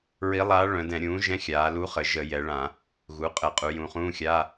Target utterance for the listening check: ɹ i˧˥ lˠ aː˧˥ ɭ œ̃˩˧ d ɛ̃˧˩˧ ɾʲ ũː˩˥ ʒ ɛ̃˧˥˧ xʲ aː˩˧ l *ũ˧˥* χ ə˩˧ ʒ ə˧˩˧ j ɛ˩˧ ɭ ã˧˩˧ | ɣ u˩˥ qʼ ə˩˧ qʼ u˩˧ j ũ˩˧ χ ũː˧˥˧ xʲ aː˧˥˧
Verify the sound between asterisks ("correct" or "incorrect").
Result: incorrect